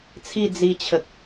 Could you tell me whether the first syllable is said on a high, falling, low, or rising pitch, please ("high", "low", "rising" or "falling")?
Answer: falling